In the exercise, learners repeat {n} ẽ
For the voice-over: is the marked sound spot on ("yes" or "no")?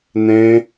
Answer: yes